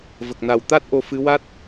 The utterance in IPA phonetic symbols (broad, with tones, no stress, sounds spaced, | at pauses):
v ə˨˩ k̚ n a˨˩ w t̪ a˦˥ t̚ ʔ o˧ f ɨ˧˥ w a˦˥ t̚